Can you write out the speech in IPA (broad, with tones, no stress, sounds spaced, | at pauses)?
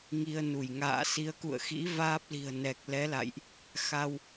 ŋ i˧ ə̯ n u˧˩ j ŋ a̰ː˧˨ s i˨˦ ə̯ k ṵ˧˨ ə̯ x ḭ˧˥ v aː˦˥ p̚ l i̤˨˩ ə̯ n ɛ˨˩ k̚ l ɛ˨˦ l a̰˧˨ j ʔ | x a˧ w